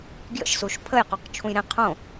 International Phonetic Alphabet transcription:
ɡ j ə̰ ʃ s u ʃ pʰ ə j q u q t͡ʃʰ ũ j ɾ ẽ qʰ õ

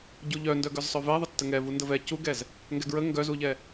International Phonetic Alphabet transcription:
ɟ u ʎ œ n d œ ɡ œ z sˤ œ v ɛ ðˤ ə tː ə ŋ ɛ v u n d ə v ɛ c u ɡ ɛ z | ŋ ɡ ɛ ɡ ɹ ə ŋ ɡ œ z u ʎ ɛ

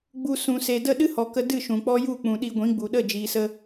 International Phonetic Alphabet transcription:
ɡ͡b u˧ s ũ˨ s e˨ d ə˦˨ ɗ ɨ˦ h ɔ˨ k ə˧ d ɨ˦˨ ʃ ũ˨ k͡p ɔ˦ j u˦˨ k͡p ũ˨ ɗ i˧ ɡʷ ĩ˨˦ ɡ͡b u˨ ɗ ə˦˨ d͡ʒ iː˨ s ə˧

